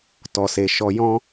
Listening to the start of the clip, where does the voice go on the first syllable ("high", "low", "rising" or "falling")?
low